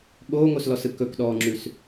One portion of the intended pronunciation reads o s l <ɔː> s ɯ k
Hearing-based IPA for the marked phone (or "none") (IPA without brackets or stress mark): ɔ